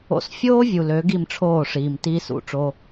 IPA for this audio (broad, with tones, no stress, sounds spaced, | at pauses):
o̰˧ s fʲ oː˥ vʲ u˩ l ø˩˥ ɡ i˥˩ m ʈ͡ʂʰ oː˥˩ ʂ iː˩ m t iː˥ s ṵ˥˩ ʈ͡ʂ o˥